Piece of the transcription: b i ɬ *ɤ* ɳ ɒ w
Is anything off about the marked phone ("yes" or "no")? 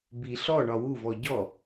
yes